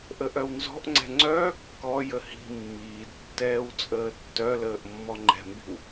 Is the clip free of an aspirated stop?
yes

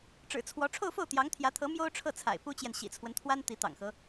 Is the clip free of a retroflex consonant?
no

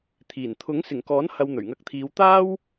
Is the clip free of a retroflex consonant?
yes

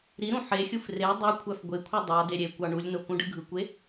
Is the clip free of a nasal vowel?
no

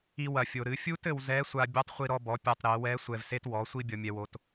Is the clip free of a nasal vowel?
yes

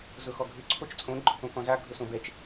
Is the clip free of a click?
no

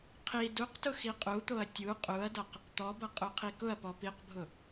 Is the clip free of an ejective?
no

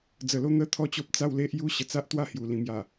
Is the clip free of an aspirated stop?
no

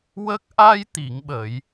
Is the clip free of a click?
yes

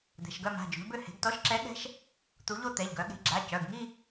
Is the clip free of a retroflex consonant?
yes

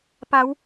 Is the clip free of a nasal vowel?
yes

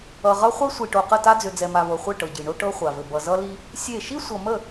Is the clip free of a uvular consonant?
no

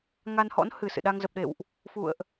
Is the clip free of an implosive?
no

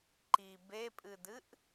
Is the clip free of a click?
no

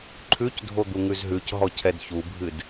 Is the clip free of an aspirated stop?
no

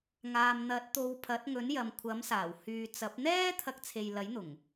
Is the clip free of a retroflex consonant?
yes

